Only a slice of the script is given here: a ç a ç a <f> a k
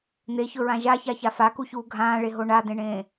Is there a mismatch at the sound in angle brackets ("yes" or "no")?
no